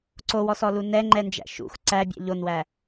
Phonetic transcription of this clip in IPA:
ǀ o w ɔ s ɔ l u n ɛ ŋ͡ǃ ɛ n d͡ʒ æ̰ ʃ ṵ x ǀ æ bʲ ɛ̰ ʎ o n w æ

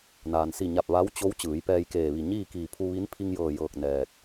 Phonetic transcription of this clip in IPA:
n aː˩ n s i˧˩ ɲ a˧˩ p̚ ʋ a˧˥ w t͡ɕ o˧˥ w t͡ɕ ɯː˩˧ j p ɛː˧ j k eː˧˩ ʋ i˧˩ ɲ iː˥˨ k iː˧˩ pʰ u˧ ʋ i˧˥ n pʰ i˧ ŋ j ɤː˧˩ j ɤː˧˩ k̚ n ɛː˧˩ t̚

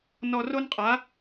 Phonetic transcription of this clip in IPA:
n ɔ˧ r o˥ n qʼ a˧˥

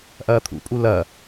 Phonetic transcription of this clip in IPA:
ʔ ɐː t̪ʰ ṵ pʼ u l ɐ

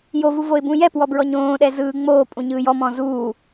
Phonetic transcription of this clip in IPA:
j o v u v o ɪ̯ b ũ j ɛ p w ɔ b ɹ ɔ ɲ õː ɗ ɛ z ɯː ŋ͡m oː pʼ ũ ɲ ɯː j ɔ m ɔ̃ z uː

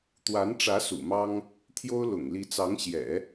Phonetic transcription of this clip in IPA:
t̪ w a˧˥ n ʈ͡ʂ ä˧˥ s ṵ˨˩ m ɑ˥ ŋ | t̪ʰ j o˥ ʊ̯ l ʊ̰˨˩ ŋ l i˧˥ t͡s ɑ˧˥ ŋ ɕ j ɛ̰˨˩˦

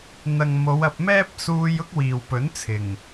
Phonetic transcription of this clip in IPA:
n̪ ɐ˨ ŋ m o˨˧ w ɐ˧ p̚ m ɛː˥ p̚ s uː˧ j ʊ˥ k̚ w iː˨ w p ɵ˨˥ n t͡sʰ ɪ˨˩ ŋ

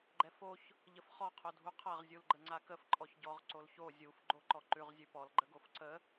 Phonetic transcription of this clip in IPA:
ɡ͡ǃ ɛ f o ç | ʎ ə f χ ɔ qʰ o dʱ u qʰ a ʁ zʲ u l ɡ͡ǃ ə ŋ͡ǀ a k ə f ǃʼ ɔ ç ɟ ɔ ʁ ǀ o l ç o zʲ u f ɡ͡ǃ o ǃ ɔ ǃ ʉ ʁ zʲ ʉ p ɔ l ɡ͡ǃ ə ɡ o f ǀ ə

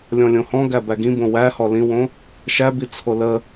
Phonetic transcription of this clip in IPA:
lʲ ɔ̃ lʲ õ h ɔ̃ ɡ æ b æ ɡ ĩ b õ w æ h ɔ l ĩ w õ | ʃ æ b i t͡sʰ o l ə

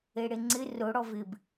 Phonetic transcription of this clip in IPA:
e ɽ e ŋ͡ǀ ɪ r ʊ ɽ ɔ v ɪ b

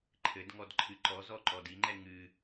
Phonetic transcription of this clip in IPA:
ǃʰ ɘ d ŋ ɔ d ǃʰ ɨ ǃ ɔ z ɔ ǃ ɔ d i ŋ͡ǃ ɛ ŋ ɨ

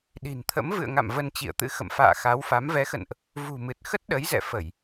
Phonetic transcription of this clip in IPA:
ɗ i̤˨˩ n t̪ʰ ə̰˧˥ m v ɨ̰˧˨ ə̯ ŋ a̰˧˨ m v ə˧ n t͡ɕ ḭ˧˨ ə̯ t̪ ɨ̰˧˥ x ə̰˧˨ m f a̰ː˧˨ x a˨˦ w f a˨˦ m v ɛ˨˦ x ə̰˧˨ n ʔ | v ṳ˨˩ m ɨ˨˩ t̚ x ə˦˥ t̚ ɗ ə˨˦ j z ɛ̰˧˨ f ə˧˩˨ j

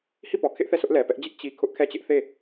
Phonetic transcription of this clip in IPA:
h i˦˨ p ɔ˨ kʰ ɪ˦ ʔ θ ɛ˦˨ sʰ ʊ˦ ʔ l ɛ˨ p ɛ˦ ʔ d͡ʑ ɪ˦ ʔ t͡ɕ i˦ kʰ ʊ˦ ʔ kʰ ɛ˦ t͡ɕ ɪ˦ ʔ θ e˦˨

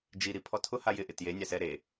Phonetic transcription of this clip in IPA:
d͡ʒ i ɾ i pʰ ɔ tʰ ʊ h a j ɪ ʔ ɪ t j e nʲ a s ɛ ɾ e

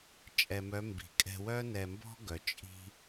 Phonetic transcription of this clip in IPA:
t͡ʃʼ ɛ˧ m œ˧˥ m b i̤˩˧ kʼ ɛ̤˧ w œ˥ n ɛ˧ m b ɔ̤˥ ɡ œ˩ t͡ʃʼ i̤˧

